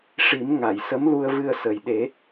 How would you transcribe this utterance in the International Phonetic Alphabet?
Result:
ʂ i˨˩˦ m ŋ a˨˩˨ j s ə˧˥ m l u˧ ə̯ v ɨ˧ ə̯ s ə˨˩ j ɗ e˨˩˦

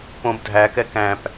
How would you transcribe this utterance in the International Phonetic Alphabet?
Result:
p õ b dʱ æ k ɛ k æ̃ p

